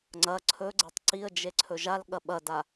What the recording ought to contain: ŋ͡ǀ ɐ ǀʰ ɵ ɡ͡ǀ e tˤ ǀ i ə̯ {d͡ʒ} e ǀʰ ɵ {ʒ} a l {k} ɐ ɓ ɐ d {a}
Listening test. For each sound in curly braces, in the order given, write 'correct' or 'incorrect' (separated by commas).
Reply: correct, correct, incorrect, correct